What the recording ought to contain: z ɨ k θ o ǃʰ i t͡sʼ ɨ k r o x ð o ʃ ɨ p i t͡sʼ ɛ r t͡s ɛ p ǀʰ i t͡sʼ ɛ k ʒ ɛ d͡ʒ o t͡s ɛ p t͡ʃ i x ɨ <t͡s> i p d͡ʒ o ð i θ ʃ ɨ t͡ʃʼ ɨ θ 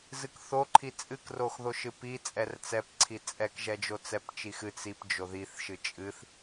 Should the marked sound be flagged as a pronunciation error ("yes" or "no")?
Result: no